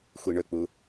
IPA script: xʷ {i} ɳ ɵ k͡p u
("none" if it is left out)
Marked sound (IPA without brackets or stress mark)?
i